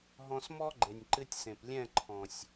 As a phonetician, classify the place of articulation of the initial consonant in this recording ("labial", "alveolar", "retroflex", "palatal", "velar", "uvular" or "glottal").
glottal